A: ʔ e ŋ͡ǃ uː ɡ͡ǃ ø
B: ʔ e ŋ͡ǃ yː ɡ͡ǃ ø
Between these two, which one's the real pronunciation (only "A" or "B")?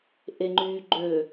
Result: B